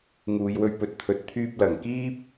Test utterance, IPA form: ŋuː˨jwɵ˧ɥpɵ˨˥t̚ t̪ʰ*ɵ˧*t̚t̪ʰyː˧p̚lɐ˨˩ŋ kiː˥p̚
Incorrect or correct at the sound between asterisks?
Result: incorrect: ɵ˨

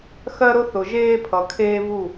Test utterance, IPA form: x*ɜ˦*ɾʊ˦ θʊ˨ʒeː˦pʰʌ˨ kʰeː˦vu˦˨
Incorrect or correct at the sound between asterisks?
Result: correct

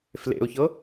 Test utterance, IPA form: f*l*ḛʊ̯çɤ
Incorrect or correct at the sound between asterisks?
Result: correct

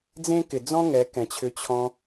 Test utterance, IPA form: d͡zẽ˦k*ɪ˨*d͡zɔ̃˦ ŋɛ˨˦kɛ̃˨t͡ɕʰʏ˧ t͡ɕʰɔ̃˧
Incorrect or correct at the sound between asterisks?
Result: correct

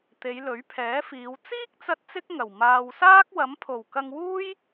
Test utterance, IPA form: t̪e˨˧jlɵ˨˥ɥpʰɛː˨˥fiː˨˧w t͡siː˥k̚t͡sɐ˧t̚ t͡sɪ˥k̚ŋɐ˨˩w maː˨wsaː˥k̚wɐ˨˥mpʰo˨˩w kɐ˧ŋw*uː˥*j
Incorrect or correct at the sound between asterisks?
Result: correct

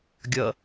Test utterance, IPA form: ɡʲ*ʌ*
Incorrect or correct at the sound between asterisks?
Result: correct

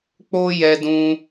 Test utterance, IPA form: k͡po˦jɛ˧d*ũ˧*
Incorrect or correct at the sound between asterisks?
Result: correct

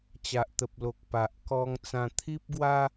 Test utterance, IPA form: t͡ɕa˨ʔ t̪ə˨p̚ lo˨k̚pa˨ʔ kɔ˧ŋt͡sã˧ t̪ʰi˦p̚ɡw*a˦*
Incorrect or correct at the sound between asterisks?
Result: correct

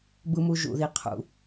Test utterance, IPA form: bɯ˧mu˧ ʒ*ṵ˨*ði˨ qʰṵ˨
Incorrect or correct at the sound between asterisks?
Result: correct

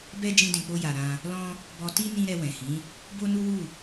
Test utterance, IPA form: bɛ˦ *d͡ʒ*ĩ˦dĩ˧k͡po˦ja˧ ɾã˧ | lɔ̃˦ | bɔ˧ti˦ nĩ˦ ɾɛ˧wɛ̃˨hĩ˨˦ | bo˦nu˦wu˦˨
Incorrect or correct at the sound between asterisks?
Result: correct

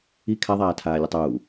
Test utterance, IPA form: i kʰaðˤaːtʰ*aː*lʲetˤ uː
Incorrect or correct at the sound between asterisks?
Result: correct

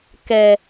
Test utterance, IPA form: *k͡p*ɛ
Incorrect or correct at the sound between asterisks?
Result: incorrect: k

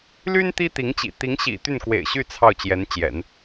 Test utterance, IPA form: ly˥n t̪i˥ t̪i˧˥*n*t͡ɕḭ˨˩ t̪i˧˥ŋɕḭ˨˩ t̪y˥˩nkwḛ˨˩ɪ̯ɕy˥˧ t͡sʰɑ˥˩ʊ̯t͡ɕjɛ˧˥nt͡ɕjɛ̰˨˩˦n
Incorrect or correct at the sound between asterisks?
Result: incorrect: ŋ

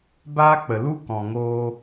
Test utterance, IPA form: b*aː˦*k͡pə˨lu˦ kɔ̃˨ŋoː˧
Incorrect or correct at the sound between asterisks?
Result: correct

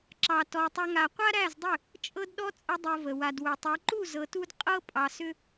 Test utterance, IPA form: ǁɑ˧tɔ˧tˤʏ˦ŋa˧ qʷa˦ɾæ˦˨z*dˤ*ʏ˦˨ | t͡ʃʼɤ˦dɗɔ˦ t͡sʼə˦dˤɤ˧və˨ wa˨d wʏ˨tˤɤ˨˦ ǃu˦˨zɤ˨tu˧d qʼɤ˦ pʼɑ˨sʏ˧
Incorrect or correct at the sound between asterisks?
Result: correct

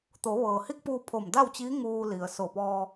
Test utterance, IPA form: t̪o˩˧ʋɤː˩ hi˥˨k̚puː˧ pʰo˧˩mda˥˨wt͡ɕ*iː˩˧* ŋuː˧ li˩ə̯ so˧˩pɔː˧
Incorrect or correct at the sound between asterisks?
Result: incorrect: iː˧˥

